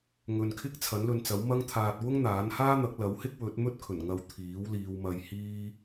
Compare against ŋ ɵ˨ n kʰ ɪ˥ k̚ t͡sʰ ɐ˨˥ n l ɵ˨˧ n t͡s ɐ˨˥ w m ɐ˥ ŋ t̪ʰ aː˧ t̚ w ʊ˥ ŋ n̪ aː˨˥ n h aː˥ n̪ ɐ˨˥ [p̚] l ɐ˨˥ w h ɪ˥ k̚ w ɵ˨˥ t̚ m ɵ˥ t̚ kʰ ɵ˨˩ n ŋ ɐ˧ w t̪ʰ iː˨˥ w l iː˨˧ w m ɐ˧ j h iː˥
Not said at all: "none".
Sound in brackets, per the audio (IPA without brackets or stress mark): k̚